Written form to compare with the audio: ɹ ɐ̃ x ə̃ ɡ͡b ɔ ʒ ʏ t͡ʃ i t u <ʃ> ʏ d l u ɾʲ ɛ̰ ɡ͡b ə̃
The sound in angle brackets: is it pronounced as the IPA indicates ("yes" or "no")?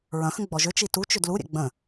no